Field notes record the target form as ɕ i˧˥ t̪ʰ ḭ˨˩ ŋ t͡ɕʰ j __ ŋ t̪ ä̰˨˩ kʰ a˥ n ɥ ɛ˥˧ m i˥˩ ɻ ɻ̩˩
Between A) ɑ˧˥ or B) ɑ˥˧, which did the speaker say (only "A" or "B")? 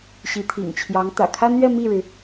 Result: A